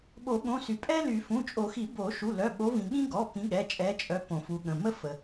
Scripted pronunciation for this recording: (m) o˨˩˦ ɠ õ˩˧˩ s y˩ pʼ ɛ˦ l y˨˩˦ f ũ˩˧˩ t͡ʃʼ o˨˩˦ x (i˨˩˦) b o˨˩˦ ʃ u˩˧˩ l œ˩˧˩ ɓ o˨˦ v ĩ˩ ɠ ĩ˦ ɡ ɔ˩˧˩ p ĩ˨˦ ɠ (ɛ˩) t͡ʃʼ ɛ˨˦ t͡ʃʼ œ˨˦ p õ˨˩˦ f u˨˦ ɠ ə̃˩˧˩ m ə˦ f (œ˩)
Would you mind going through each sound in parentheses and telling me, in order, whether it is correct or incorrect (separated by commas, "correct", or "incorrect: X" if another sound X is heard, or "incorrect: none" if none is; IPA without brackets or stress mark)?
incorrect: ɓ, correct, incorrect: ɛ˩˧˩, incorrect: ə˩